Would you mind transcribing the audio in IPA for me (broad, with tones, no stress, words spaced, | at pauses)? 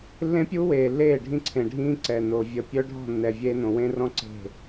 lːẽ˦pʲu˦weː˨lːeː˦˨ ɖʱĩ˦ǀʰẽ˨ɖʱĩː˦ ǀɛ˨no˨ vʲə˨ pʲœ˦ɖʱɔ̤˦˨nːɛ˨ vʲeː˦nõ˨ wẽ˦rɔ̃˦ ǀe̤˦˨